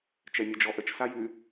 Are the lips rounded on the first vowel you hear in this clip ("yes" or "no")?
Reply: no